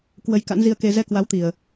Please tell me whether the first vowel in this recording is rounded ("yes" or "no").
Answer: no